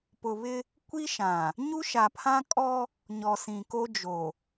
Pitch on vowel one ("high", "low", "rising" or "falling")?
low